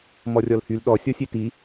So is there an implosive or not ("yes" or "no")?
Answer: yes